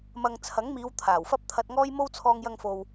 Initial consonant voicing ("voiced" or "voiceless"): voiced